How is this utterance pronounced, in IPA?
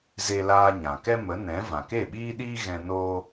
z e˧ l aː˧ ɲ ã˨ k ɛ˦ m ə˨˦ n ɛ̃˨˦ v ã˨ k e˦˨ ɓ iː˦ ɗ iː˦ ɣ ɛ̃˧ n oː˦

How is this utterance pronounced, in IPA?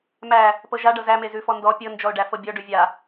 m æ | p ɤ ʒ a ɖ ɤ z æ m e z ʉ f ɔ n d ɔ pʲ ɤ n d͡ʒ ɔ ʊ̯ ɖ æ f ɤ bʲ ɔ ɖ ʉ vʲ a

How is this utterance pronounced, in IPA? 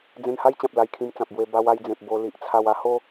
d͡z ẽ˧ n h a˦ j t͡ɕ ã˨ p̚ l a˧ j kʰ ĩ˧ m t͡s ã˨ p̚ b w e˧ b a˧ w a˧ j d͡z ẽ˨ p̚ b o˧ l i˨ ʔ t͡sʰ a˧ w a˦ h o˦

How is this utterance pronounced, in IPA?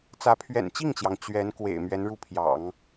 t͡s ä˧˥ pʰ ɥ ɛ̰˨˩ n t͡ɕ i˥˩ ŋ t͡ɕ j ɑ˩ ŋ t͡ɕ ɥ ɛ˧˥ n k w ḛ˨˩ ɪ̯ m ɥ ɛ˧˥ n ɻ u˥ pʰ j ɑ̰˨˩˦ ŋ

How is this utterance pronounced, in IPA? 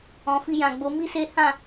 ɔ̃˨ f i˧ j ã˨ ɡ͡b o˨˦ m i˦ s e˦ h ã˦˨

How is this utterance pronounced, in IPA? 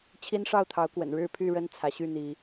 t͡ɕʰ i˦ n ʂ ɑ˥˨ ʊ̯ t̪ʰ ɑ˨˦ ʊ̯ k w ə̰˨˩ n ɻ ɻ̩˥˨ pʰ y˥˨ ɻ ə˦ n t͡sʰ ä˨˦ ɕ y˥˨ n̪ i˨˦

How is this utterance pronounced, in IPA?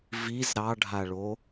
v i z ɾ ɑ ɖʱ a ɭ o

